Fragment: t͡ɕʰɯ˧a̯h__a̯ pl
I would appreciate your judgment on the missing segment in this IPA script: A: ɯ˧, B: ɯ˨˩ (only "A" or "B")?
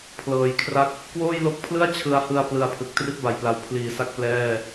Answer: A